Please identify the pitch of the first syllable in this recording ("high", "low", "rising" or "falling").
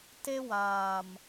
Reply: high